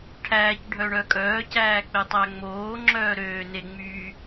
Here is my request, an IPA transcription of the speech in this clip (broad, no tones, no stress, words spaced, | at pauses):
ʈʰæːc ɖʱœɳœkʼœː cæːk͡petˤæŋ͡moː ŋ͡ǁœːɾøː neŋ͡myː